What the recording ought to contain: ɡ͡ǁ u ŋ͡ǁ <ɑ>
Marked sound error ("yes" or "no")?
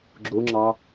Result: no